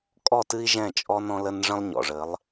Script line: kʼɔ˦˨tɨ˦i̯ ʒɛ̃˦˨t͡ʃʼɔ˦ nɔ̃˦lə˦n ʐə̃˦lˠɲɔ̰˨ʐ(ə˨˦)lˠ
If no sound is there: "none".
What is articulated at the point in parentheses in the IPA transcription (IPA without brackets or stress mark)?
ə˨˦